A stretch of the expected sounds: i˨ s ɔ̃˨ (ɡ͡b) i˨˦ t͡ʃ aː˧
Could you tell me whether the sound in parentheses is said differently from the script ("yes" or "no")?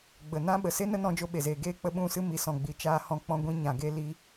no